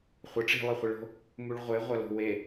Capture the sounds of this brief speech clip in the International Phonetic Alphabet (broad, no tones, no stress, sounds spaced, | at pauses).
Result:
χʷ ɐ ʈ͡ʂ i̤ lˠ ɨ χʷ e ɭ o̤ | m u ɭ ʁʷ e ʁʷ ɐ l o̤ w e